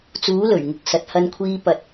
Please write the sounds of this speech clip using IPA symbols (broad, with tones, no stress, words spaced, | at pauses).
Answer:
t͡suː˨˥lɵ˨˩ɥŋʊ˨k̚ sɐ˨t̚hɐ˧nkʷʰiː˧ pɐ˨t̚